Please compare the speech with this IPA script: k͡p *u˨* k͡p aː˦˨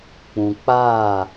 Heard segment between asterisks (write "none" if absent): ũ˨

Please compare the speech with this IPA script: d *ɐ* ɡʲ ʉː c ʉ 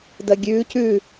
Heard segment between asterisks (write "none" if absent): ɐ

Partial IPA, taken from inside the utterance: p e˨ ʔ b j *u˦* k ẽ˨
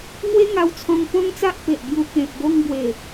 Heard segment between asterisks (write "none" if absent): u˧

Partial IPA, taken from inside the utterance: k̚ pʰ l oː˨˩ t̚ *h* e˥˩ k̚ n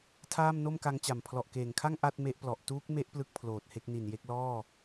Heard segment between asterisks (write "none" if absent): h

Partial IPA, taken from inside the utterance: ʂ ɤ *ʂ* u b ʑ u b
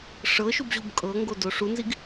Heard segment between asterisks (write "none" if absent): ʃ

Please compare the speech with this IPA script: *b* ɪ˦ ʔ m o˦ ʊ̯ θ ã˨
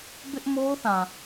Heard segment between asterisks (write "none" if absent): b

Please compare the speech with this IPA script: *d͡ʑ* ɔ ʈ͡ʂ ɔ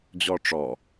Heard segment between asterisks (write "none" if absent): d͡ʑ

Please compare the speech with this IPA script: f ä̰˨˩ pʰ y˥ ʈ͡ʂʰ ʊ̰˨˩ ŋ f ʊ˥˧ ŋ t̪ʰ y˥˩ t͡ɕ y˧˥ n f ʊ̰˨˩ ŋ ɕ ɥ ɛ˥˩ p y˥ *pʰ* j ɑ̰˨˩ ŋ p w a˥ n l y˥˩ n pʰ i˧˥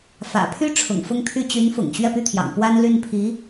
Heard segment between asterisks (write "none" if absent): t̪ʰ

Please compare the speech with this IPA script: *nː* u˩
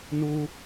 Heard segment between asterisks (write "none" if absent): n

